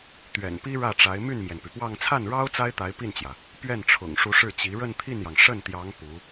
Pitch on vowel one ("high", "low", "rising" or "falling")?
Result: low